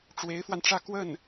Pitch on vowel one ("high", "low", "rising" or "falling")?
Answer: rising